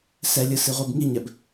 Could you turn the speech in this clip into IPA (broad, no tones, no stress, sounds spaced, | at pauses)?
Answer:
s ɛ lʲ ɯ s i ʁʷ i b ŋ i ɲ ɛ b